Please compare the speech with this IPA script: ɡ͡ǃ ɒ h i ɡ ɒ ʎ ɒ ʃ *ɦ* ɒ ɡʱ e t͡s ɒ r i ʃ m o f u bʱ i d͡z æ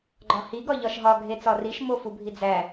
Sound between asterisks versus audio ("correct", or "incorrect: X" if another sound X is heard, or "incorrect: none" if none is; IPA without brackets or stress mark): correct